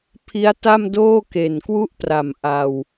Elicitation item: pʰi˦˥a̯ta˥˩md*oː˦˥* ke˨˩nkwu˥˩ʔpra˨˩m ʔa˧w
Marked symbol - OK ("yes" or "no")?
no